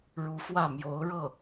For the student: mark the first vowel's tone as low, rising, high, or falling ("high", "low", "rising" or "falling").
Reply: rising